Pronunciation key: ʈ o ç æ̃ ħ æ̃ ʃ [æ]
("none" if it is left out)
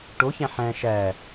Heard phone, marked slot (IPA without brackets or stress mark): æ